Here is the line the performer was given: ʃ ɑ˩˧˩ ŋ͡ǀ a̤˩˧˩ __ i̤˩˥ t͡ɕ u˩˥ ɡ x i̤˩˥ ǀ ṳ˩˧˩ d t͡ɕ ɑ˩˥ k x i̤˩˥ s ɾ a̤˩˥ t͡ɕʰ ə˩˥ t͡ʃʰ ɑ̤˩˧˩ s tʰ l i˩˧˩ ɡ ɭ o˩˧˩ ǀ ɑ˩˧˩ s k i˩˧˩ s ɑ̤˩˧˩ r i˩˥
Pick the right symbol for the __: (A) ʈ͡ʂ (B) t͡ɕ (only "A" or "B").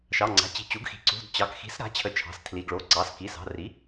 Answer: B